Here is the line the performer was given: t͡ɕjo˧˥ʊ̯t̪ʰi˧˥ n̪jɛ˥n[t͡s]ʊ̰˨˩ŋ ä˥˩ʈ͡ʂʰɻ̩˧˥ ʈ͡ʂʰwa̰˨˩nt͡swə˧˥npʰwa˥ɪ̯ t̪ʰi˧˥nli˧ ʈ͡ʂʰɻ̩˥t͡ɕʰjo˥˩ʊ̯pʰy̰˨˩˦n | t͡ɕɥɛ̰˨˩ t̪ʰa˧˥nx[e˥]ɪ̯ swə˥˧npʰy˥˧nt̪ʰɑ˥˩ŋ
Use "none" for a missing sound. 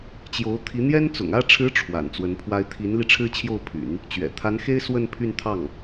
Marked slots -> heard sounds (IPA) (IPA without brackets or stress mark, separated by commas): t͡s, e˥